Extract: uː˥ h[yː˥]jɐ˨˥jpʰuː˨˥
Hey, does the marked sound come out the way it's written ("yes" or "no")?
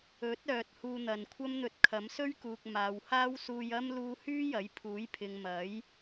yes